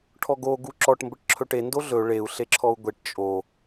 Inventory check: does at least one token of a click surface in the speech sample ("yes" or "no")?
yes